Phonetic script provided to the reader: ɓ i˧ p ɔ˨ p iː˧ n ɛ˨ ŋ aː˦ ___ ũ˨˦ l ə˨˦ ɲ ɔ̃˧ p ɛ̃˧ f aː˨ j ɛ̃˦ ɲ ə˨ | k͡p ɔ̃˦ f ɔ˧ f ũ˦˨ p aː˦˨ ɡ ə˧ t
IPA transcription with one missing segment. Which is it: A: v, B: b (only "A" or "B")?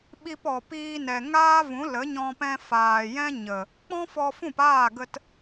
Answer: A